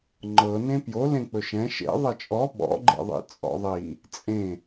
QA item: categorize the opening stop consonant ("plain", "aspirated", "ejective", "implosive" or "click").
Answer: click